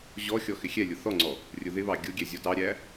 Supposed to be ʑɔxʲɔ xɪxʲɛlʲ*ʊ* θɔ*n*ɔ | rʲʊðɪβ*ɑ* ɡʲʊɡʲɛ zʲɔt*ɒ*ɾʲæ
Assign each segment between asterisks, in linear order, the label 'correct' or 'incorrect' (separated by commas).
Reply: correct, incorrect, correct, incorrect